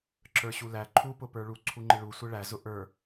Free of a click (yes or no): no